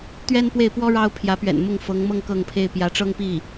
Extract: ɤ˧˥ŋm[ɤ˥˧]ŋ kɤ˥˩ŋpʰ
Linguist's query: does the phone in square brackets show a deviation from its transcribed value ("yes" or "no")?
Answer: no